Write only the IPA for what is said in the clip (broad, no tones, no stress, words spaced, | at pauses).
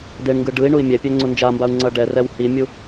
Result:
deɳŋɡɯ ɖɯi̯ ɳui̯mʲɛpʲɛ ŋ͡ǀund͡ʒambau̯ ŋ͡ǀʌɖɛrɛw himʲu